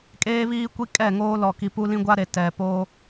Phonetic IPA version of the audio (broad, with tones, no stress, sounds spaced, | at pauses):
kʼ eː˦ β iː˦ kʷ i˦ kʼ ɛ˦˨ ŋ oː˦ l ɔ˨ k i˨ p u˦ l ĩ˦ ɡʷ a˦ ɾ e˨ t ɛ˨ p oː˦